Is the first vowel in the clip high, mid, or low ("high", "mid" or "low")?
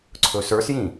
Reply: mid